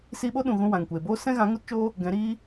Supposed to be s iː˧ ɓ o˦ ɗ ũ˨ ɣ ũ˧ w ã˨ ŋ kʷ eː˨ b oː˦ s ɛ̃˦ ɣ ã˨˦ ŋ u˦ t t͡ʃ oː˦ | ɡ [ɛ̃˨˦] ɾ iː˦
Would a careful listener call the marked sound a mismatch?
no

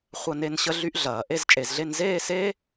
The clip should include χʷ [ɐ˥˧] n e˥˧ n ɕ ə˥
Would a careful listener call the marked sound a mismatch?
no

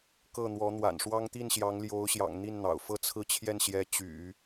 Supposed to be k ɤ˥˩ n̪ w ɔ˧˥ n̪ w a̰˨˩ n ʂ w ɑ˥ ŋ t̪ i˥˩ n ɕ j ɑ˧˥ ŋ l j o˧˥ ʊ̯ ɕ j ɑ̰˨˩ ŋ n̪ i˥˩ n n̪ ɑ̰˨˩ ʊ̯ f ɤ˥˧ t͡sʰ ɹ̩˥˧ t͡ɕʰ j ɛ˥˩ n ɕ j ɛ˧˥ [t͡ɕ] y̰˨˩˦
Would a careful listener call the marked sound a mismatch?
no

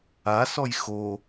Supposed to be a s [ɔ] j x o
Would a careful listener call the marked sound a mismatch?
no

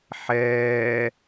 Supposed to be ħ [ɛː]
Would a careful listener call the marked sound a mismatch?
no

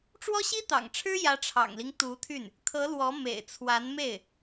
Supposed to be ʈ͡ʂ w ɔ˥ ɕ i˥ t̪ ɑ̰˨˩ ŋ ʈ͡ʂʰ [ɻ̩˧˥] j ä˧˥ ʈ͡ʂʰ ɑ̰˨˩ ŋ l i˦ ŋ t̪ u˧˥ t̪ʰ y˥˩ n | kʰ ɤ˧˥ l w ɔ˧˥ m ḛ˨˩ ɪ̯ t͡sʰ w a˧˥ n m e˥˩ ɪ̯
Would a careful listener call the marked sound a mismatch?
yes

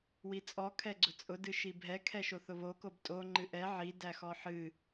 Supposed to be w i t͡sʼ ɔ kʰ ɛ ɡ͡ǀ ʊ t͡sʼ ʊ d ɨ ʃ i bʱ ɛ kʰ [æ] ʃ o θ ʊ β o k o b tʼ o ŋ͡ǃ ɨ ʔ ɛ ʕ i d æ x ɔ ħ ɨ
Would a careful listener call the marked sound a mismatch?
yes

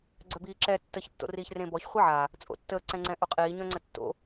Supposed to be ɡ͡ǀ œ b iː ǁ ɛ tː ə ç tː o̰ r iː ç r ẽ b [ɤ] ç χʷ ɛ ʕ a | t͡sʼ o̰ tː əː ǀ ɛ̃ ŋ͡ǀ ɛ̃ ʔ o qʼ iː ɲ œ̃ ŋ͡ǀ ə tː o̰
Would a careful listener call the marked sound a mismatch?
yes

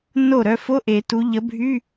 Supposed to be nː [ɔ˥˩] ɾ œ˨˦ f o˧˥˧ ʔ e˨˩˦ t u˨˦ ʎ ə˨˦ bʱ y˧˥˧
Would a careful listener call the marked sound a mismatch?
yes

